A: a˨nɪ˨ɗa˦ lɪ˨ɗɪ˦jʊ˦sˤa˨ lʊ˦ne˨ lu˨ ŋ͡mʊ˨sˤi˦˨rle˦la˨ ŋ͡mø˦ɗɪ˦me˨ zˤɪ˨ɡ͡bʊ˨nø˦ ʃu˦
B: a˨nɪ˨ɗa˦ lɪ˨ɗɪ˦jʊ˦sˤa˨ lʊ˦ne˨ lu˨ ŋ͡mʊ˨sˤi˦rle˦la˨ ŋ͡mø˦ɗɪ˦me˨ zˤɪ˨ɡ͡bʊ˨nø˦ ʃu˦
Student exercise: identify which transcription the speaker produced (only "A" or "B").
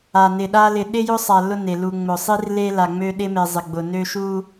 B